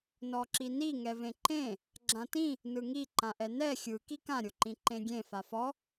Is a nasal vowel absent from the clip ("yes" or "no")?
no